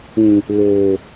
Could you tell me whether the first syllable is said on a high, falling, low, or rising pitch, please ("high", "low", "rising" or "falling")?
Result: low